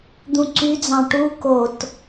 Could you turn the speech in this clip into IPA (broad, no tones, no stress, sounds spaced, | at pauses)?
d̪ ũ ǀ y d͡z ɑ̃ ʈ u k o t